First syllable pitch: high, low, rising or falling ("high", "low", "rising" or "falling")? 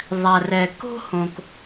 low